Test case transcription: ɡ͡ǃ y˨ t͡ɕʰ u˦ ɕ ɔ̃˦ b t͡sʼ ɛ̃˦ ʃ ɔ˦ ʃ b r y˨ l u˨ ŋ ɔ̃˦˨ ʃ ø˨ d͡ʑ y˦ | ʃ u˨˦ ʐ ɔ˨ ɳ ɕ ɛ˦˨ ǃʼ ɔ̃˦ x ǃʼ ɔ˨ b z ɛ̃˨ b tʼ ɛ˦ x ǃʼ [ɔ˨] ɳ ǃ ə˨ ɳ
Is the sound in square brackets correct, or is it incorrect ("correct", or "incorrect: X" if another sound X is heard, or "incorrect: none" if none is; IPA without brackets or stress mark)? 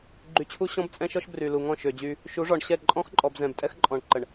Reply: incorrect: ɔ̃˨